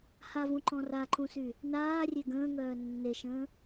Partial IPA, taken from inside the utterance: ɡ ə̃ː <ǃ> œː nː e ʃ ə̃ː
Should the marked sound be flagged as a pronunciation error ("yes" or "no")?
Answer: yes